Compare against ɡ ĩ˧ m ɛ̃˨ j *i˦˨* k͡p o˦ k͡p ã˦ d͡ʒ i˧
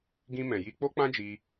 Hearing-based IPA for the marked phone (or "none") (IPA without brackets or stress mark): i˧